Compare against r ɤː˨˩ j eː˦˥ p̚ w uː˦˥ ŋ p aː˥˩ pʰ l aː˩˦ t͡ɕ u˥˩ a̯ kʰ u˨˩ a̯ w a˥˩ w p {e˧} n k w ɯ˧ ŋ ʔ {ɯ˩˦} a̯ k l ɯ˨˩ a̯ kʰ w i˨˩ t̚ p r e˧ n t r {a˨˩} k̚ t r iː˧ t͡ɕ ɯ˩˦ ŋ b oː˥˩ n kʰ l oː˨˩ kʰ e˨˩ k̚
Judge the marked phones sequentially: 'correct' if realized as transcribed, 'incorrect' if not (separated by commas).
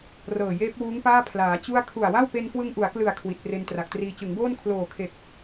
correct, incorrect, correct